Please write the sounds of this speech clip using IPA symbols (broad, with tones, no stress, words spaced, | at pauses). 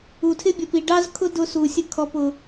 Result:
u˨tʰɪ˦bʲʌ˨p i˨ɖɑ˦zkʰʊ˦ dʊ˦su˨sʲə˦ kʰɔ˨pʊ˨